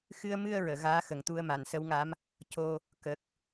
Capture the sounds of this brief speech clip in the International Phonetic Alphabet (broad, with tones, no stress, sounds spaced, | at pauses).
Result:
x ɨ˧ ə̯ m ɨ˧ ə̯ ɹ əː˨˩˨ ɣ aː˧˥ x ə˨˩ ŋ t̪ u˧ ə̯ m a˨˩˨ n s ə˧˥ w ŋ a˧˥ m | c o˧ | k ə˨˩ k̚